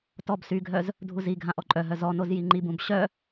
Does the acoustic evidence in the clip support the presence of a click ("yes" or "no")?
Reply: yes